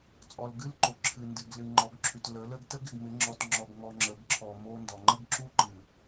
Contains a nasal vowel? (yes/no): no